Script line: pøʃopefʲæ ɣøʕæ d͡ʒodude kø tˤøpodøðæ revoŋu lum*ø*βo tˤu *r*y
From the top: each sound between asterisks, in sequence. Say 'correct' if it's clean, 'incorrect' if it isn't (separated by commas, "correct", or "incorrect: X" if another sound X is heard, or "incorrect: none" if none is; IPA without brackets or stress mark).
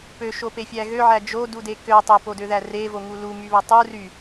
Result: incorrect: y, correct